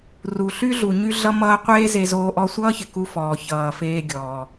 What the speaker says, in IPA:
r u˩ ɬ y˥ ɮ u˩ ɲ y˧ ɮ ʌ˧ m ʌː˧ qʷ eː˥ z e˧ z oː˧ ʔ ɔ˧ sʷ ʌː˥ ç ɪ˩ k u˧ f ɔː˩ ç ʌː˩ f eː˧ ɡʲ ɔː˩

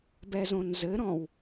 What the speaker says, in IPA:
b ɛ z õ n z ɘ ɾ ɔ̃ w

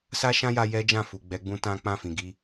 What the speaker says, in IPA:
s a˦ ʃ ã˦ j a˧ j ɛ˦ d͡ʒ ã˦˨ f u˨ ɡ͡b ɛ˨˦ ɡ͡b ũ˦ t ã˦ k͡p ã˦˨ f ĩ˨ ɡ i˧

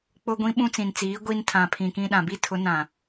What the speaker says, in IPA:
k͡p ʊ˦ ɡʷ ĩ˦ ɓ ũ˦ t͡s ĩ˨ n t͡s iː˨˦ ɡʷ i˦ n tʰ ã˨ pʰ ĩ˨ k ĩ˦ ɗ ã˨ b i˦ tʰ ʊ˨˦ n ã˨

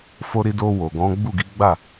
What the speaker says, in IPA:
f o˧ ɾ i˧ d o˧ w o˨ ɡ ɔ̃˨˦ ɡ͡b u˦˨ ɡ i˨˦ ɡ͡b a˦˨

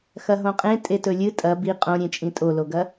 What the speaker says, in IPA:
x ɐ ɦ õ qʼ ẽ tʼ e t ɵ lʲ ɨ tʼ ɐ b i qʼ õ ɾʲ ẽ t͡ʃʼ ĩ tʼ o l o ɡ ɐ

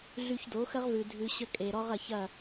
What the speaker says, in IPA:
ɮ y˧ ç d o˨˦ x ə˦ ʁ v ʉ˨ dʱ ʉ˧ ɕ ə˦ kʼ e˨ ɾ ɔ˦ ʁ ɐ˧ ç ɐ˦˨

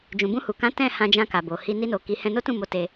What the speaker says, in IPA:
d͡ʒ ũ˨ b ũ˧ h u˨ k ã˨˦ t ɛ̃˦˨ h ã˧ d͡ʒ ã˧ k a˨ b o˨ h i˧ n i˦ n o˧ k i˧ h ɛ̃˧ n o˦ t ũ˦˨ m o˨˦ t e˧

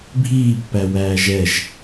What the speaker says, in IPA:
bʱ iː pː æ w æː ʒ ɛ ʒ

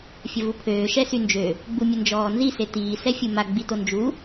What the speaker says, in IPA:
fʲ ə v u pʰ øː ʃ ɛ s y n d͡ʒ ø | ɡ͡b u mʲ ə n d͡ʒ ɔː n z i s e t iː s ɛ fʲ u m a ɡ͡b i t o n d͡ʒ u

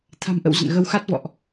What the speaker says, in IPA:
t̪ʰ a̤˨˩ m ʔ ə̰˧˨ w z ə̰˧˨ n ɣ ə˧ w x a˦˥ t̚ v ɔ̰˧˨ ʔ

